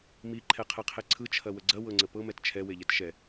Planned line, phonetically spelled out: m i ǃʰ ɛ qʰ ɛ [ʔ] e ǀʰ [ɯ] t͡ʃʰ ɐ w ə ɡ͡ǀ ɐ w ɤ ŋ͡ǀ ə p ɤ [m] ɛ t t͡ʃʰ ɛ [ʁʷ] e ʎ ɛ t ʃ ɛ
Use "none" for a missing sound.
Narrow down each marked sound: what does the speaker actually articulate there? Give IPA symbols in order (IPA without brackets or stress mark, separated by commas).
qʰ, ɯ, m, w